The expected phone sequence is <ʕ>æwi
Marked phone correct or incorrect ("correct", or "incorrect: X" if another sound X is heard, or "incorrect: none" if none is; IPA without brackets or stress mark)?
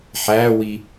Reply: incorrect: ħ